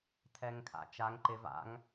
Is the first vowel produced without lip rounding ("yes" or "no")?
yes